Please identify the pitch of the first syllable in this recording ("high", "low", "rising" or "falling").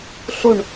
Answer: falling